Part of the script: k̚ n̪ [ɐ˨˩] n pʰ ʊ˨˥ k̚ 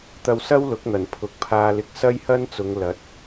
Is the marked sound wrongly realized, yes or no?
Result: no